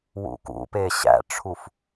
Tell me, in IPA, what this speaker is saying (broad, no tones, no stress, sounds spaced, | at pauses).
w ṵ k ṵ p e ɕ æ̰ ʈ͡ʂʰ u f